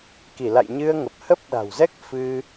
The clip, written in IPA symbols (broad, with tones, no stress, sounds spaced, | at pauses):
k i˧˩ l a̰˧˨ j ɲ ɨ˧ ə̯ ŋ ə˨˩ p̚ h ə˦˥ p̚ ɗ a̤˨˩ w z ɛ˦˥ k̚ f ɨ˧